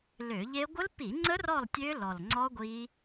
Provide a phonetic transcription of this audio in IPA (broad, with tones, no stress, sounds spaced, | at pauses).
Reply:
l ø˧˩˧ ʎ e˦˥ ɡʷ ə˦˥ l p i˧˩˧ ŋ͡ǀ ə˦˥ r ɔ˦˨ lˠ tʲ ø˦˥ l ɔ˨˩ l ŋ͡ǀ ɔ˦˥ ɡʷ i˦˥